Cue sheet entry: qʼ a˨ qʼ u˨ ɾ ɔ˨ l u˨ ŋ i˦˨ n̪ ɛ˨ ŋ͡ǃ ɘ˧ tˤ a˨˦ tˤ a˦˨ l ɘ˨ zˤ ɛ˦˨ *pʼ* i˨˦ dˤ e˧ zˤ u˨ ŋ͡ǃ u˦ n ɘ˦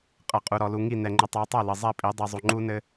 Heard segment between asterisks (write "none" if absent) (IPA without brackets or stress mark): pʼ